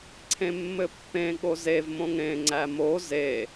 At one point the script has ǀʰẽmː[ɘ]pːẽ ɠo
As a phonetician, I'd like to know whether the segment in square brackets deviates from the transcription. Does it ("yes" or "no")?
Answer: no